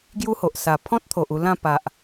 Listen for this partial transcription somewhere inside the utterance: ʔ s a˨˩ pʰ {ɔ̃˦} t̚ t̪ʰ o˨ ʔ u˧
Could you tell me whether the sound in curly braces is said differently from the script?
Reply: no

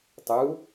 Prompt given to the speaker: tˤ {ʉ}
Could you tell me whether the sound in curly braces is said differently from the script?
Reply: yes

